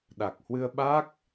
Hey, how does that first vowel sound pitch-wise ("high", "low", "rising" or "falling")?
low